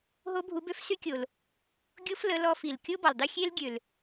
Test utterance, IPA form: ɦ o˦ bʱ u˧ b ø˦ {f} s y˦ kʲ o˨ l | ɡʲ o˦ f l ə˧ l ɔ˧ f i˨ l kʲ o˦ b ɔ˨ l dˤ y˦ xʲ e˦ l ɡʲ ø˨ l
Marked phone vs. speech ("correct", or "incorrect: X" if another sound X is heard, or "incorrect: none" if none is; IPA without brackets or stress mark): correct